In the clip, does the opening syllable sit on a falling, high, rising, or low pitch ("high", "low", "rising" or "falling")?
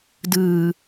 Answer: low